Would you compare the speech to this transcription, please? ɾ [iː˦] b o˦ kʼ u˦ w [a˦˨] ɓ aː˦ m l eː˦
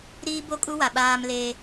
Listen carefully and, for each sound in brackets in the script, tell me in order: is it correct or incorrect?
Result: correct, incorrect

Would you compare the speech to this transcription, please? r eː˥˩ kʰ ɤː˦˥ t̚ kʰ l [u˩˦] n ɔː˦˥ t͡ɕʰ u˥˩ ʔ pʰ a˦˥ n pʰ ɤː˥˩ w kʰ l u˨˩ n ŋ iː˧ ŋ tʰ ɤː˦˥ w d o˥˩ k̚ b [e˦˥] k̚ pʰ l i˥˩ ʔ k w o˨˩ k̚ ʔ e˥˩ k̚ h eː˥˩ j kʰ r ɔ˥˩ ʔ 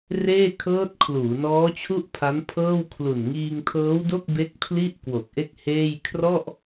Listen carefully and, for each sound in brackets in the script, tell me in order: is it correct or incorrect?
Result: incorrect, correct

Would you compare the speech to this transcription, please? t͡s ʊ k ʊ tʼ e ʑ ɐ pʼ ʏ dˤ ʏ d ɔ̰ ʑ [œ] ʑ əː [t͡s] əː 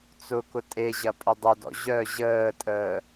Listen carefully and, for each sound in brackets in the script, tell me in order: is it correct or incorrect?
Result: correct, incorrect

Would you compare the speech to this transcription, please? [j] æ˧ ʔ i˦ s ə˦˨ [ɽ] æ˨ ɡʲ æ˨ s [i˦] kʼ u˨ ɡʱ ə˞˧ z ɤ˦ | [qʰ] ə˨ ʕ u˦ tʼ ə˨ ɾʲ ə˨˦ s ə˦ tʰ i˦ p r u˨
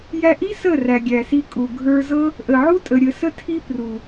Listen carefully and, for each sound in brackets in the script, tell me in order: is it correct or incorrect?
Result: correct, incorrect, incorrect, incorrect

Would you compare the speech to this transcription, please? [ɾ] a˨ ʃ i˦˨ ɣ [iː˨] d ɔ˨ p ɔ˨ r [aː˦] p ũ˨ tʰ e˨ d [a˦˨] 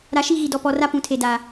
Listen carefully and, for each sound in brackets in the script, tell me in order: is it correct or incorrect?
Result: correct, incorrect, incorrect, incorrect

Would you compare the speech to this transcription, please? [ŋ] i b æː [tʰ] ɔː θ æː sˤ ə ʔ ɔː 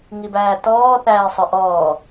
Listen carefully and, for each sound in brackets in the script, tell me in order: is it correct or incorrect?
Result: correct, incorrect

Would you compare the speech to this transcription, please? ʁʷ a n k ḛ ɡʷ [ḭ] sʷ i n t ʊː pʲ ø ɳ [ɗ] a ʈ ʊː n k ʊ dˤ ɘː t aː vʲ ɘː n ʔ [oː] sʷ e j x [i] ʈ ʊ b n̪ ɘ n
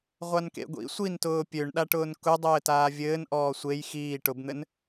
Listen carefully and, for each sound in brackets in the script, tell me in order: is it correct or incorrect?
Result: correct, correct, incorrect, incorrect

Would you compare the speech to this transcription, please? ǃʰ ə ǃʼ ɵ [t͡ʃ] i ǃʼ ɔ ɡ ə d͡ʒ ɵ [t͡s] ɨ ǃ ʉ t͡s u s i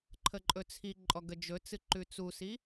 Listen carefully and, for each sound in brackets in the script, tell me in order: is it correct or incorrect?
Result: incorrect, correct

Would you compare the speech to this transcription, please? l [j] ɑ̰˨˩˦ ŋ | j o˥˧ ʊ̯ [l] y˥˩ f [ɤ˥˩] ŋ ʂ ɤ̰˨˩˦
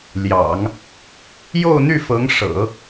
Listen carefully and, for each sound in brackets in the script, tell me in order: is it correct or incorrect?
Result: correct, incorrect, incorrect

